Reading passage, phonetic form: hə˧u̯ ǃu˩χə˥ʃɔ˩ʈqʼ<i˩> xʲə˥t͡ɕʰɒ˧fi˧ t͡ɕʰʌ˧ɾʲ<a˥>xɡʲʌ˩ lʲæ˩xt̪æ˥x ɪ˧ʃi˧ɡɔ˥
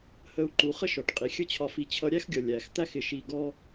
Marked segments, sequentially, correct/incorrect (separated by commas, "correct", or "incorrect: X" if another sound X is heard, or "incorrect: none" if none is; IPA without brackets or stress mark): correct, incorrect: æ˥